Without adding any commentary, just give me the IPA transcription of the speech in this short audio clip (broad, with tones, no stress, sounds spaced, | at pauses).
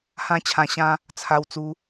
h ã˦ t͡ɕʰ ã˧ ɕ ã˦ | t͡sʰ a˧ w t͡s u˧